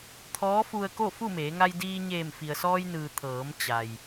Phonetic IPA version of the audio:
t̪ʰ ɔː˧˥ f u˧ ə̯ k o˥˨ f u˥˨ m eː˩˧ ŋ a˧ j d iː˧ ɲ eː˧˩ m f i˩ ə̯ s ɔː˧ j n ɯː˩ t̪ʰ ɤː˩˧ m t͡ɕ a˩ j

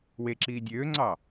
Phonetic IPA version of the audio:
w e ǁ iː dʲ øː ŋ͡ǀ ɑ

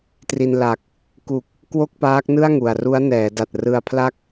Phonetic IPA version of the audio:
t r i˧ n l a˨˩ k̚ | k u˨˩ k̚ | k w o˥˩ k̚ p aː˦˥ k̚ n ɯ˥˩ a̯ ŋ u˨˩ a̯ r u˦˥ a̯ n ɛː˩˦ d a˨˩ t̚ r ɯ˧ a̯ pʰ l a˥˩ k̚

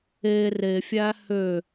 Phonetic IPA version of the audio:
e r e fʲ æ h ø

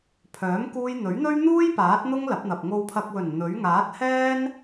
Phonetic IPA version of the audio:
pʰ œː˨˥ m k uː˧ j n̪ ɵ˨˥ ɥ n̪ ɵ˥ ɥ n̪ uː˥ j p aː˨˥ t̚ n̪ ʊ˥ ŋ l ɐ˨˥ p̚ n̪ ɐ˨ p̚ ŋ o˨ w pʰ ɐ˨ k̚ w ɵ˨˩ n n̪ ɵ˨˥ ɥ ŋ aː˨˥ t̚ h ɛː˥ n

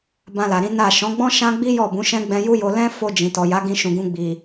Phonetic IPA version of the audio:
b ã˧ l a˨ ɾ ĩ˨˦ n a˦˨ ʃ ɔ̃˨˦ ɡ͡b ɔ̃˦ ʃ ã˦ ɡ͡b i˦ j ɔ˦˨ b ũ˨˦ ʃ ɛ̃˦ ɡ͡b ɛ̃˧ j u˦ j o˧ l ɛ̃˦ f o˧ d͡ʒ ĩ˨ t ɔ˨ j a˨˦ ɡ ĩ˧ ʃ ũ˨ ɡ ũ˧ ɡ͡b i˨

